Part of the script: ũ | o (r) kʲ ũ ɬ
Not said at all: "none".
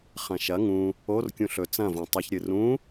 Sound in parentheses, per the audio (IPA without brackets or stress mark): r